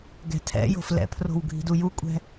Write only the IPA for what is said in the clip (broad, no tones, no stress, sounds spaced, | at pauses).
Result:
ɡ ɛ̤ tʰ ɛ̰ j o̤ f l ɛ̰ pʰ r o̤ w ɡʱ i̤ d u j u kʷʼ ɛ̤